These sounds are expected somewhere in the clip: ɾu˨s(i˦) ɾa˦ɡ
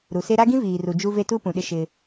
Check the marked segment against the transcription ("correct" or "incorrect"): incorrect